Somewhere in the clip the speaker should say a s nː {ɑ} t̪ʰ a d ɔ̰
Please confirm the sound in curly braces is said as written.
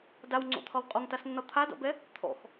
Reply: no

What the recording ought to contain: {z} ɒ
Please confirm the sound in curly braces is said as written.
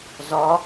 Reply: yes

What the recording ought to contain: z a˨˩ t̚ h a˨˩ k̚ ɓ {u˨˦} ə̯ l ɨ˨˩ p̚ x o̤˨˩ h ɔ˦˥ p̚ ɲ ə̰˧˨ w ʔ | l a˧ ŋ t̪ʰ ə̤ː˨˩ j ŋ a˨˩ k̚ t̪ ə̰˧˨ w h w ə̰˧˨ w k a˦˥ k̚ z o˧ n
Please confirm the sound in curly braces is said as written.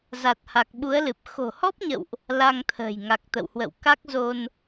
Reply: yes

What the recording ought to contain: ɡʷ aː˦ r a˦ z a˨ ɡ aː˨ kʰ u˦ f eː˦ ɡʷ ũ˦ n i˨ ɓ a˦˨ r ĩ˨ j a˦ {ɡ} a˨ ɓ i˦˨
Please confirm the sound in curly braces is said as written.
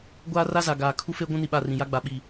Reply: no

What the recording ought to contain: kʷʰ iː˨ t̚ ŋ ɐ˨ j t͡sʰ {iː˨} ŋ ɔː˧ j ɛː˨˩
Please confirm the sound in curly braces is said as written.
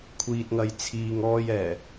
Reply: yes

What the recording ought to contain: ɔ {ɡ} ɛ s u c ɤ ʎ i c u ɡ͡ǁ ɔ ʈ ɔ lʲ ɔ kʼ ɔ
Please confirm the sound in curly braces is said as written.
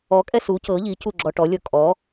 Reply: no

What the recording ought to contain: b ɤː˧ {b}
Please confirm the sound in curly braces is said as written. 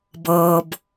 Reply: yes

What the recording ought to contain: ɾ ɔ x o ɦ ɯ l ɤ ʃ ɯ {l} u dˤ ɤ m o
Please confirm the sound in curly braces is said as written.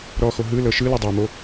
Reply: yes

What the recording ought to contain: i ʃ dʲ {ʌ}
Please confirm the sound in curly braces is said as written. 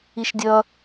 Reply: yes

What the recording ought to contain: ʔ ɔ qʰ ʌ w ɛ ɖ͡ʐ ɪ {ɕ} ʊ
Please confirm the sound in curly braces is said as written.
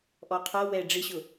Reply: yes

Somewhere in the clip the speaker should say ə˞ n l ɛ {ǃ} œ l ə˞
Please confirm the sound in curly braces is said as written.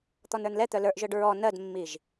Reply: no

